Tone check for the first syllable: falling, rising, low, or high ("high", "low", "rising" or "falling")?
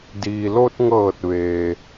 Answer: low